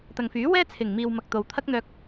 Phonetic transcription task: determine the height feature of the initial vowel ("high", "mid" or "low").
low